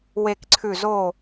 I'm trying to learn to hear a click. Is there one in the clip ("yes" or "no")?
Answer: yes